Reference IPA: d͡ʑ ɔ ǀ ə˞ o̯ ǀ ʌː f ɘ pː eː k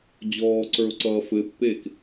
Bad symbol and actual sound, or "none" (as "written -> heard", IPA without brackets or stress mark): ɔ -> ɔː